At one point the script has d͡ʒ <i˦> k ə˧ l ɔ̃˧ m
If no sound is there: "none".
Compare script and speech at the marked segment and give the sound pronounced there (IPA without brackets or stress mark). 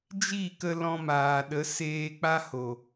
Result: i˦˨